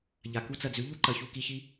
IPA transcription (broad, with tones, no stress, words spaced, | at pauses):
ʎa˨ku˦t͡sɐ˧d͡zʉ˨˦ ʎu˦ǃɐ˨çu˧ ki˧çi˦